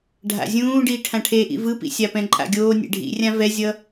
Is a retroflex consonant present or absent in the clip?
present